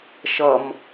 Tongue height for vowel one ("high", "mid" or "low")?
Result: mid